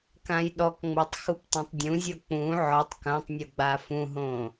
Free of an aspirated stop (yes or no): yes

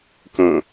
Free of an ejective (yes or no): yes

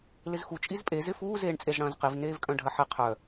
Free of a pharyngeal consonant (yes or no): no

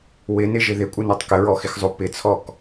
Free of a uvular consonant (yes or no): yes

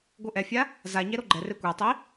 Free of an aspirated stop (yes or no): yes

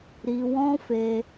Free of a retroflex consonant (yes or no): yes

